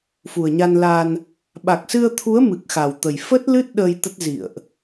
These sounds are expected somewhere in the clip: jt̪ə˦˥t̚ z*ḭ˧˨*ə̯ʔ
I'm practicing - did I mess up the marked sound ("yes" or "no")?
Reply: no